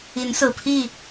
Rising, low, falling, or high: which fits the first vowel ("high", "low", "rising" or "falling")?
rising